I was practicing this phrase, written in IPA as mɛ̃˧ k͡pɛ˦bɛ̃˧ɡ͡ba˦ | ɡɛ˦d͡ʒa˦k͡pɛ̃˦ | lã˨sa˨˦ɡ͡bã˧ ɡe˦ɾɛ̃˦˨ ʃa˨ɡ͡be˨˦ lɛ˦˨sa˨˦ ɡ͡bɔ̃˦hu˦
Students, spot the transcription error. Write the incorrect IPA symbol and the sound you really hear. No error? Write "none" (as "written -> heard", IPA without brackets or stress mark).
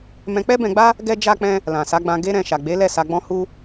none